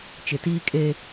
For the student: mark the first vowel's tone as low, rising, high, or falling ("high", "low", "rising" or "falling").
low